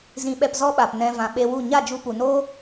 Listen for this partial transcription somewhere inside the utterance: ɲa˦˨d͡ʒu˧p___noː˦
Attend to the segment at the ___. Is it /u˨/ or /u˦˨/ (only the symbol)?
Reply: u˨